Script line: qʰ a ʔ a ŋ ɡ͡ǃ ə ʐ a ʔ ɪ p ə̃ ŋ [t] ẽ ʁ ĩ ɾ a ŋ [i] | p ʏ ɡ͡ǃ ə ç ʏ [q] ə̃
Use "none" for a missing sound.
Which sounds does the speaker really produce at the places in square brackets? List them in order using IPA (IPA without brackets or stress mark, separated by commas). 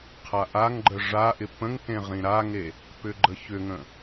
t, e, ŋ